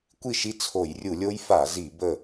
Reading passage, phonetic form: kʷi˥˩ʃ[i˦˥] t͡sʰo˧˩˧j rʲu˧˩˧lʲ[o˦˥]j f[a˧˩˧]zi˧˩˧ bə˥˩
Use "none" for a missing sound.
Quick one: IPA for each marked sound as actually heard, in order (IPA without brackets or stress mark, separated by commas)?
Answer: i˥˩, o˦˥, a˧˩˧